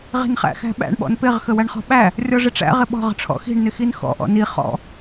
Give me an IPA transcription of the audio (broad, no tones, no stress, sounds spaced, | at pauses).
ʁ i̤ n χ æ̰ x æ̤ ɓ æ̰ ɳ ɓ ɔ̰ n p ɪ ʁ x ə w æ ɳ χ ɔ̤ ɓ æ | rʲ ɔ ʐ ɪ ʈ͡ʂ æ̰ ʁ ɪ ɓ ɔ̤ ʁ ə̤ ʈ͡ʂʰ ɔ̰ x i̤ ɳ n ɪ x i n x ɔ̰ ʔ ɔ̰ n i χ ɔ̰